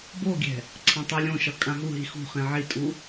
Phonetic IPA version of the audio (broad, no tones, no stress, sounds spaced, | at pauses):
b o ɡʲ ɛ̤ | ǀʰ ã tˤ i lʲ õ ʃ ʌ kʼ ã ɦ u ɦ i x ṳ χ ẽ ʕ i tʼ u